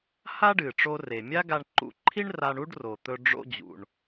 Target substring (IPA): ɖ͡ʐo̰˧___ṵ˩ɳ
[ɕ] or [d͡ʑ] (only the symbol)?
d͡ʑ